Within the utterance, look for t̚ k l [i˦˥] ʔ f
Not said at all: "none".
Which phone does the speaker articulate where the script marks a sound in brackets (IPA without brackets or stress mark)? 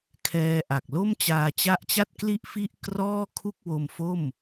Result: i˥˩